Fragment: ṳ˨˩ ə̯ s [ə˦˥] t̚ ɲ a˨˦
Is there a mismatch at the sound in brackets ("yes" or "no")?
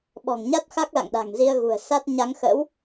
yes